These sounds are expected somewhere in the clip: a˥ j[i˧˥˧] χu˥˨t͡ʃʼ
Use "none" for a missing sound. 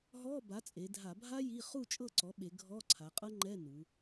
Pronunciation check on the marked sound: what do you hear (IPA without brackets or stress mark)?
i˧˥˧